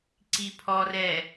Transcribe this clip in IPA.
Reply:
ǀ i pʰ ɔ r ɛ

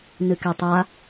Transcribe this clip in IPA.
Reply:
n ɨ k e tˤ a

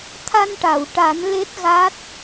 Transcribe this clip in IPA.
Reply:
t̪ʰ a˧ n ʈ a˨˩˨ w ʈ a˨˩˦ n l e˦˥ t̚ ɣ a˦˥ t̚

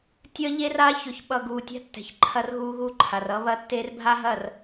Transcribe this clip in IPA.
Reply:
tʲ ʌ˦ ʎ e˦ r a˦ ç ɵ˨ ç ɓ ʌ˨ ɡ uː˨ tʲ a̤˦ tː ɛ̤˨ ç ǃʰ ɐ˦ r ɣ uː˦ ɣ u˦ ǃʰ a˨ r ʌ˦ β ɐ˦ tː e˦ r bʱ a˦ ɦ ɐ˦˨ r

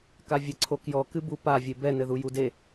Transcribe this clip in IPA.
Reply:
k a vʲ ɘ ǀʰ o k j ɔ k ɨ b u p a vʲ e b ɛ n ɘ ð u j u d e

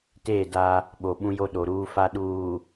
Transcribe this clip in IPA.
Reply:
t eː˦˨ d a˦ | ɓ o˨ ɓ ũ˦ j o˦ ɗ o˨ ɾ uː˦ f a˦ ɗ uː˨

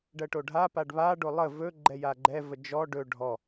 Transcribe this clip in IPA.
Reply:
ɖ ɜ ʈ o ɖʱ a p a ɖ β a ɖ o lˠ ə v ɵ ɡ͡ǃ ɛ j a ɡ͡ǃ ɛ v ə d͡ʒ ɔ ɖ ɵ ɖʱ ɔ

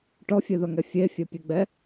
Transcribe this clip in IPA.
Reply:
ʈ ɔ fʲ e ð ɐ ŋ ɛ fʲ e fʲ ɛ pʲ e ɡ͡b ɛ

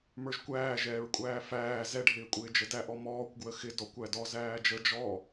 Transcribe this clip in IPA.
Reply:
m ə˞ ʒ kʷ æː ʒ ɛː ɹ kʷʼ æː f æː z ɛ ɖʱ ɪː kʷʼ ɪː d͡ʒ ə d æ ʔ ɔ m ɔː kʷ ɡ w ə x ɪ d ɔ kʷ æ d ɔ z æː d͡ʒ ə d͡ʒ ɔ

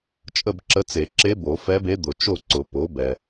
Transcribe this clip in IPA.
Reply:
t͡ʃʼ ə˥˨ b ǁ ə˧˥ t͡s e˨˩˦ ǁ e˧˥ b o˨˩˦ f ɛ˧˥ b e˧˥ d̪ ʊ˨ t͡ʃ o˥˨ ǀ ʊ˨˩˦ p o˩˥ b ɛ˨

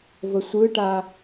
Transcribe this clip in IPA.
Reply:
v ə sʷ ɯ ʈ a

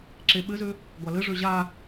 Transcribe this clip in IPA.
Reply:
ǁ e ɓ ɘ z ø | ɡʷ a l ɘ ʐ ø ʑ a

